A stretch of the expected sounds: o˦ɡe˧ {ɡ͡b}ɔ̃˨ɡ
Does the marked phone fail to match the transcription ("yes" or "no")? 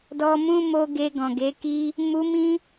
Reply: yes